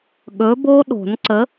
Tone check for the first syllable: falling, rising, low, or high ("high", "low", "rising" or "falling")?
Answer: rising